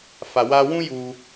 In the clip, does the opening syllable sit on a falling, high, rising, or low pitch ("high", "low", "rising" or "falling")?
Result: low